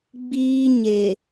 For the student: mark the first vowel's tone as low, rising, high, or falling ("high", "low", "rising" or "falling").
high